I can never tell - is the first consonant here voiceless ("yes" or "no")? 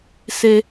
yes